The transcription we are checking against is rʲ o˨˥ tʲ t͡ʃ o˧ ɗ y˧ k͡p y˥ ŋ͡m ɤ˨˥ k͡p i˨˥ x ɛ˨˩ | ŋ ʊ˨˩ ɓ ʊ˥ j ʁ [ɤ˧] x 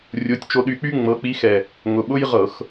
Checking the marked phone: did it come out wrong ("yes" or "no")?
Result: yes